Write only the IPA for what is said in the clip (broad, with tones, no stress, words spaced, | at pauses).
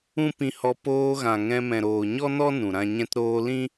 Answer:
ũ˦ pĩ˧hɔ˧ poː˧ɣã˨ ŋɛ̃˧ mɛ̃˨ɾoː˨ɲɔ˦nɔ˦ nũ˨ɾã˦ ɲɛ̃˧tɾoː˧lĩ˦